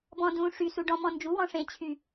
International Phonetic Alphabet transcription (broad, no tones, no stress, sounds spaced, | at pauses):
b ɔ̃ d ũ ʂ y s u ɖ ɔ̃ m ɔ̃ n d͡ʒ u w ɔ̃ ʂ ẽ t͡ɕʰ y